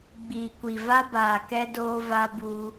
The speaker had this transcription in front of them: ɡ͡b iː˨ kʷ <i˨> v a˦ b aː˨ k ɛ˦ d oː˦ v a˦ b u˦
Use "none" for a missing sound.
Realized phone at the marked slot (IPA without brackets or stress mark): i˨